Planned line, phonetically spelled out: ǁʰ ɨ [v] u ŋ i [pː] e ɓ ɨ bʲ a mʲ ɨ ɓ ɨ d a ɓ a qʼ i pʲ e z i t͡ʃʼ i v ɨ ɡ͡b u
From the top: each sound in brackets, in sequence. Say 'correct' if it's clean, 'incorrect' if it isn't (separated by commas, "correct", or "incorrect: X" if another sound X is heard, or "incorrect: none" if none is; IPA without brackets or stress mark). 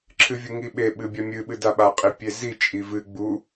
incorrect: vʲ, incorrect: ɓ